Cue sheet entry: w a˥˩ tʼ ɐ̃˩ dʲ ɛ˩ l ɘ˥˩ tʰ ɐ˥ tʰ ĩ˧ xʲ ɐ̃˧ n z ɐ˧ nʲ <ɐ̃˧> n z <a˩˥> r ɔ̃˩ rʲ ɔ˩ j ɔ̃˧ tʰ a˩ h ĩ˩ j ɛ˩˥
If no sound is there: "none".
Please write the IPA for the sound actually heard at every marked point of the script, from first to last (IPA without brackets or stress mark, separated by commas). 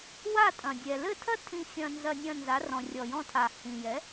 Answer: ɐ̃˧, a˩˥